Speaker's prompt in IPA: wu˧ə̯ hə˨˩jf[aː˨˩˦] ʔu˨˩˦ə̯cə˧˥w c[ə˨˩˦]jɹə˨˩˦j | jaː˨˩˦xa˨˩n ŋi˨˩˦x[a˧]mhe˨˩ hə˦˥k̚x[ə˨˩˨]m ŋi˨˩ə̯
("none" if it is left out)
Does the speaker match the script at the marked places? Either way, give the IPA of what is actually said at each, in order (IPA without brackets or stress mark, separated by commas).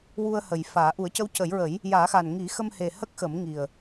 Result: aː˨˩˦, ə˨˩˦, ə˧, ə˨˩˦